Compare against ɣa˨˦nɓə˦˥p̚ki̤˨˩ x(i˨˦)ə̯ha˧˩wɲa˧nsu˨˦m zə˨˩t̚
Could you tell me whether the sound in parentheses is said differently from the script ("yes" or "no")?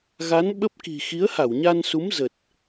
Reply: no